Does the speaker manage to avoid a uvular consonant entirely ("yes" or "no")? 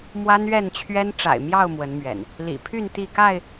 yes